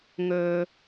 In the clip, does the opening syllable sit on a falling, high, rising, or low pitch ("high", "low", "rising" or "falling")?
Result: high